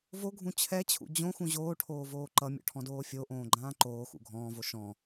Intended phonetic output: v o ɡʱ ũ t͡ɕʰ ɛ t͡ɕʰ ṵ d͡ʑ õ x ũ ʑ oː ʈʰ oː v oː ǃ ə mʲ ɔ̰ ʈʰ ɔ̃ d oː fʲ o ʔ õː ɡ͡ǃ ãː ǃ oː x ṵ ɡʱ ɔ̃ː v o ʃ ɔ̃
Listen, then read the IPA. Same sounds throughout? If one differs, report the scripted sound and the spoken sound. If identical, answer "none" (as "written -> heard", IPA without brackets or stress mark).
ə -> ʌ